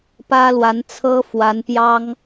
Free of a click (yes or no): yes